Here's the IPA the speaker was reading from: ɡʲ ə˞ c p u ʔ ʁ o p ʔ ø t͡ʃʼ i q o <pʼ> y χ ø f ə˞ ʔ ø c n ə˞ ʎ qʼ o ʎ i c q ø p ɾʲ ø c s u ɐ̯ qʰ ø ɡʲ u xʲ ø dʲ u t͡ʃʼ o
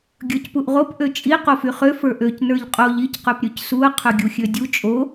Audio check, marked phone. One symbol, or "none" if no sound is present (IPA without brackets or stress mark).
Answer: f